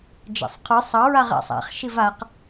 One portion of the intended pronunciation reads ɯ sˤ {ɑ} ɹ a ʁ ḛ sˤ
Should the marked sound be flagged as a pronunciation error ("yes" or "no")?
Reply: no